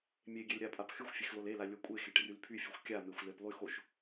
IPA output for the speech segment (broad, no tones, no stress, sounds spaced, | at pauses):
mʲ e ɡʲ e l ɾʲ a pʼ a p x y xʷ fʲ e x l o l e l a lʲ o kʷʼ e x e ʈ r y l pʰ y fʲ o xʷ kʲ a m e xʷ l e p lˠ y x o ʃ